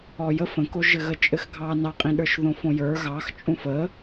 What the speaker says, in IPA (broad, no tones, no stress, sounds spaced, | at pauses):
ɔ j ə f ə̃ k o ʒ ɘ ɣ ə t͡ʃʼ ɘ x ɡʱ ɑ n ɑ qʼ ĩ ɗ ə˞ ʃ ð õ f õ j ə˞ ɣ ɑ x t͡ʃʼ ũ f ə